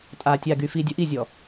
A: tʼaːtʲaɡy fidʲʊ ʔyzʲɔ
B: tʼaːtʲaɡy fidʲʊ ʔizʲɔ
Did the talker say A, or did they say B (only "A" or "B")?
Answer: B